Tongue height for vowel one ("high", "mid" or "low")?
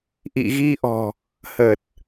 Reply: high